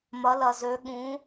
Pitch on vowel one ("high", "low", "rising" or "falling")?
rising